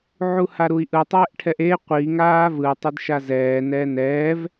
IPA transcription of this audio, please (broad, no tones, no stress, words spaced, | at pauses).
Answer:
ʕuhaɾui̯ʔɯ tˤɛːʔʈʰɛʔe qʷi ŋaːvɯ tˤedʃazɛː nɛːnɛːv